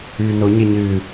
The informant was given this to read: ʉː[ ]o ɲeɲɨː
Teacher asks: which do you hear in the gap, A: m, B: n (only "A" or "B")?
B